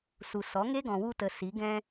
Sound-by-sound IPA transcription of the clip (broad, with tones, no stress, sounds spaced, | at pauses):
s u˨ s ɔ˨˦ ŋ e˦ ɡ ɔ̃˨ w u˧ t ə˨ s i˨˦ ɡ ɛ̃˦